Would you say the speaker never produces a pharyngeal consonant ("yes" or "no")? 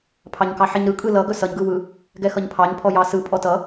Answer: no